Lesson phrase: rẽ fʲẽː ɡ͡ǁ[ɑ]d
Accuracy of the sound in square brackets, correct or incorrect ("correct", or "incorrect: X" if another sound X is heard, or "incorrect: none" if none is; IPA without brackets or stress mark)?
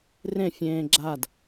incorrect: a